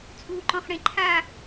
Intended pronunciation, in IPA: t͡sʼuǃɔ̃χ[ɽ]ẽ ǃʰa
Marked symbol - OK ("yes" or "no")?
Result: yes